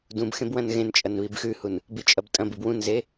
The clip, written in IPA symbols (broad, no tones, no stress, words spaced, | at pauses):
dũbxẽb wɐ̃nɣẽnt͡ʃʼɐn βibxʉhun | bit͡ʃʼɐbtʼɐ̃bɨb wũnze